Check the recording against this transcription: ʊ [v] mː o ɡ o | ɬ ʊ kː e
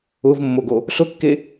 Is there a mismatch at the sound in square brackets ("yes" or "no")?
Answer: no